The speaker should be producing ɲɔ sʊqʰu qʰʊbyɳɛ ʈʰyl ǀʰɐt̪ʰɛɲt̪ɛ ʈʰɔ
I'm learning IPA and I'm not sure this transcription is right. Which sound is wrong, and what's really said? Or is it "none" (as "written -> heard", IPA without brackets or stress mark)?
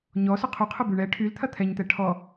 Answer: ǀʰ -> t̪ʰ